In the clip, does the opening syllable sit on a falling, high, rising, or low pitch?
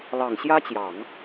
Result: low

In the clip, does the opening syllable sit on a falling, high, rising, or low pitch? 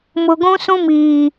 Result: low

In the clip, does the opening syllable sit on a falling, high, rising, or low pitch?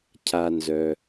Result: low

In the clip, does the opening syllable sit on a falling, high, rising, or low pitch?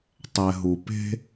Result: low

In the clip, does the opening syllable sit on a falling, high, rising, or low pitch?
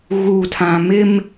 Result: low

